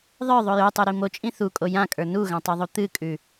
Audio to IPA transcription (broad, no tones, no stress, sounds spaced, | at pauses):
ðˤ ə˞ ðˤ o j o tˤ u ɾ i m o t͡ʃʼ ĩ θ u kʼ o j ã kʼ ə˞ n u ɣ ã tˤ ʉ ðˤ u t̪ ɨ kʼ ʉ